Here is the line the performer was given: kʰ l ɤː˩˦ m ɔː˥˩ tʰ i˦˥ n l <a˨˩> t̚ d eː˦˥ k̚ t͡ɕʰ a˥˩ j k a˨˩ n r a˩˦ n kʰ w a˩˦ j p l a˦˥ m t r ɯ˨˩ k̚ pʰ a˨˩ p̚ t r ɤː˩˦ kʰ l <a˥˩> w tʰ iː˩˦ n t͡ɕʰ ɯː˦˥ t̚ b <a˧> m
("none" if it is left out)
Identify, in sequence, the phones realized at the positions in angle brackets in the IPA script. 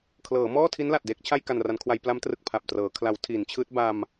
a˨˩, a˩˦, a˧

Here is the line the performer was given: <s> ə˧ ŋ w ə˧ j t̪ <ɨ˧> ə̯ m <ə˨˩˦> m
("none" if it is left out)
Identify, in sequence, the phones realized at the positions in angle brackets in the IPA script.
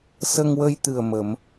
s, ɨ˨˩, ə˨˩˦

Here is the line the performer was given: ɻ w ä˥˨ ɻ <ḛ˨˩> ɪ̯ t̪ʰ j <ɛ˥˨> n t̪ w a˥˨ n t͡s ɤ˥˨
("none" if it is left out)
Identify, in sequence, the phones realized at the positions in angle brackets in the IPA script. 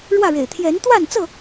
ḛ˨˩, ɛ˨˦

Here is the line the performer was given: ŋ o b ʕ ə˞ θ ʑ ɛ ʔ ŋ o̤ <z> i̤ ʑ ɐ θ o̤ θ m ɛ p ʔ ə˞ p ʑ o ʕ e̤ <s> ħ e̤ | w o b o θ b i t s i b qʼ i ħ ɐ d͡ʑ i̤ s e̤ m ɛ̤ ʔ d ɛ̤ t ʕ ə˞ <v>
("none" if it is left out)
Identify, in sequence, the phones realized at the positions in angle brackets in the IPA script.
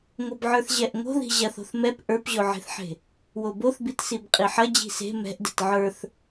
ð, θ, θ

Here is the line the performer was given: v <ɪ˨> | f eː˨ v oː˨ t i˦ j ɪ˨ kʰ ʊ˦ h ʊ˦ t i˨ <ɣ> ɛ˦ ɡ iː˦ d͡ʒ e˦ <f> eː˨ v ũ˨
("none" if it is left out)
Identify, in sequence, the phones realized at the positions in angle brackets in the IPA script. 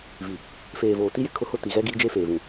i˨, ɣ, f

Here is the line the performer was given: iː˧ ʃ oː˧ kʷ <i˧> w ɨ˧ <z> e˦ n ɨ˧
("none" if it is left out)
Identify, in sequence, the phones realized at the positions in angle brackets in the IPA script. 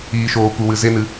ɨ˧, z

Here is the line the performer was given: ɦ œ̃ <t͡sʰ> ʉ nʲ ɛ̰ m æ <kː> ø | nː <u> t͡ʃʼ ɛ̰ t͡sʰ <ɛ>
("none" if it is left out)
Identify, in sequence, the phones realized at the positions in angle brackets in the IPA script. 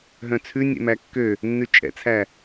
t͡sʰ, kː, ʉ, æ

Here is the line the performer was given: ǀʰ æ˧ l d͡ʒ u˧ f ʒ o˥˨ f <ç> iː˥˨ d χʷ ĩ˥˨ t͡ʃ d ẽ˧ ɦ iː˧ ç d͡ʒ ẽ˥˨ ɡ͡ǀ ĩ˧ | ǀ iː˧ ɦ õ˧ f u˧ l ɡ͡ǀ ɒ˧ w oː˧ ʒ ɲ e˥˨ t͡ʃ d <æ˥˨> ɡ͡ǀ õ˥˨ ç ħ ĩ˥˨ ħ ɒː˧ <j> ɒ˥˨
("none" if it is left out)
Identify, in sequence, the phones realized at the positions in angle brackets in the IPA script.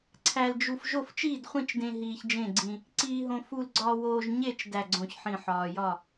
t͡ʃ, æ˥˨, j

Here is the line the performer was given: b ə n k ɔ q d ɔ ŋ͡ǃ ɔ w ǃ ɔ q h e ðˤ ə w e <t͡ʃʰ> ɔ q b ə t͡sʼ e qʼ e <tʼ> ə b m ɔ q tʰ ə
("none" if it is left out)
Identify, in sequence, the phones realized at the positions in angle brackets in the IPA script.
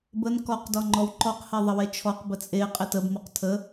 t͡ʃʰ, t

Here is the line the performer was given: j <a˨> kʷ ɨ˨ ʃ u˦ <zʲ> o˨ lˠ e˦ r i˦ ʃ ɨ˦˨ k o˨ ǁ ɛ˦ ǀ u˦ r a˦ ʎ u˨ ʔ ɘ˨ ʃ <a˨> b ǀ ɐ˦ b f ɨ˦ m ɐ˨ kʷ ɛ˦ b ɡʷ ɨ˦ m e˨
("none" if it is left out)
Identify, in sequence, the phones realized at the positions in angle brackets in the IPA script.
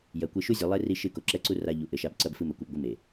ɐ˨, zʲ, a˦

